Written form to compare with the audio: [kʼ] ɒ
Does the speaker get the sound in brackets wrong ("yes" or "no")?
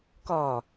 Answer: yes